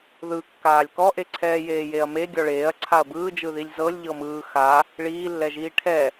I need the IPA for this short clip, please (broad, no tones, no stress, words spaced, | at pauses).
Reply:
ðɯkːaːlʲ kɔʔeǀʰɛː jeːjeɐ̯me ɡʲɔɭeːɐ̯ ǀʰaɐ̯bɯːd͡ʒɯðilʲ zɤlʲ ʎɤmɯː xa | ɭiːlːɛʒiː ʈʰɛ